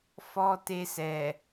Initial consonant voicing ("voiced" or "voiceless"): voiceless